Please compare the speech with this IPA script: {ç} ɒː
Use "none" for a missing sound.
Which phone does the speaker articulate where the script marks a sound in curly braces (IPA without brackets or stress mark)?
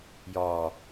j